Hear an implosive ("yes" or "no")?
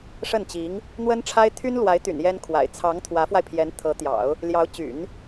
no